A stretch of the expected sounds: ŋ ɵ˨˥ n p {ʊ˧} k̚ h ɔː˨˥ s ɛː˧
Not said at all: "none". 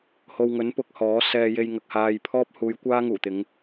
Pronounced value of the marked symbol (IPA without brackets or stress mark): ʊ˨˥